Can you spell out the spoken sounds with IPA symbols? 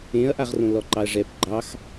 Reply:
ẽɐ̯ʔaʁrõ lɔǃɑɐ̯ʐɛp ɡ͡ǃɑx

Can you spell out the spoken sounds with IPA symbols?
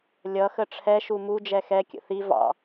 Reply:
lʲʌxə ʈ͡ʂʰɛʃu mu d͡ʒɛxɛ kʲə̰θi vɑ̰

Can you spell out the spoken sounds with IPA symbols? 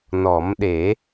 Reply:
nɔ˨˩˦mɗe˨˩˦

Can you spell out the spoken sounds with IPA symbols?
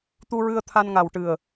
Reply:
t̪u˧ɹɨ˧ə̯ t̪ʰa˧nŋa˨˩wʈɨ˨˩ə̯

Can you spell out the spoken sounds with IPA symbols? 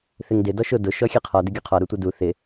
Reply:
θɪŋdɪ dɔʃʊ dʊ ʃɔxʲeqʰɔ dɪɡʲuqʰɔ ɾutʷɪdu θɪ

